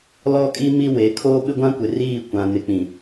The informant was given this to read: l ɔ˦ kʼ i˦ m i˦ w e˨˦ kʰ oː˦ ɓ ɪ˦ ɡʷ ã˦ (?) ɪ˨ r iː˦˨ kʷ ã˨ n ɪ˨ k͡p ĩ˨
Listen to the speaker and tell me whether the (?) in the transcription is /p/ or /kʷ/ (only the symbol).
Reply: kʷ